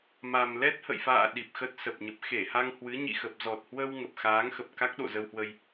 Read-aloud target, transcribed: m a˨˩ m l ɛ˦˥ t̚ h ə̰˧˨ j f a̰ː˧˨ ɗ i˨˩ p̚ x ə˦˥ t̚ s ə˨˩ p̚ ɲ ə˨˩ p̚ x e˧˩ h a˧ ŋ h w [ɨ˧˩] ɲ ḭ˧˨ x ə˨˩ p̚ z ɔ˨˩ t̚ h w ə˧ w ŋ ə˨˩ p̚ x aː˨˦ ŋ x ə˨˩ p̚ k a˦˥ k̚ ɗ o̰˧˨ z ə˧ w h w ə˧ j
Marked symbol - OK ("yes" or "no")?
no